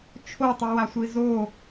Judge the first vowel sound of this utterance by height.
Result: mid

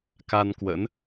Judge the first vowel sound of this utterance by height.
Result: low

